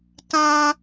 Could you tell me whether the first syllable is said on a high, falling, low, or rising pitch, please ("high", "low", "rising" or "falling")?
high